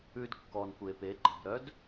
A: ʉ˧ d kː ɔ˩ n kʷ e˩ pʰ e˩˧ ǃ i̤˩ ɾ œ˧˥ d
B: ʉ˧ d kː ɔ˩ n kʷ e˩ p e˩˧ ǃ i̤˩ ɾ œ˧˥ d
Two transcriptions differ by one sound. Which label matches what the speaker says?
B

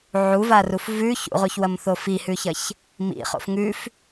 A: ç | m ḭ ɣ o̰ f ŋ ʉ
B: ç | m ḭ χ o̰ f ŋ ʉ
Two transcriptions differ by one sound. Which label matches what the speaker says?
B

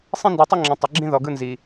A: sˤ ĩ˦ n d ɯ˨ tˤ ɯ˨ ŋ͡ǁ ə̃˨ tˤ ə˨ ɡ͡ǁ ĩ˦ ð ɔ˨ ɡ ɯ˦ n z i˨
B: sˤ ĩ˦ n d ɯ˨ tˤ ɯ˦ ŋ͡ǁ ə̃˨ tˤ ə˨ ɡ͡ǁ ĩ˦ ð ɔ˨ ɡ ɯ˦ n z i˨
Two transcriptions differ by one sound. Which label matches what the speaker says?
B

